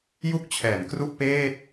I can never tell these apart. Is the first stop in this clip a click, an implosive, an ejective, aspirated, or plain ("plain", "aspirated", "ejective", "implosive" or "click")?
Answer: plain